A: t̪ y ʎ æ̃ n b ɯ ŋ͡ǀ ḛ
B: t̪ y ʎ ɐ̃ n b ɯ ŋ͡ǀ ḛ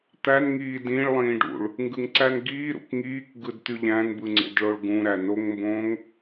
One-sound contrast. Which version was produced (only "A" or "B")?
A